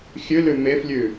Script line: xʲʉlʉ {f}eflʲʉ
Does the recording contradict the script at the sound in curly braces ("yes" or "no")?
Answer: yes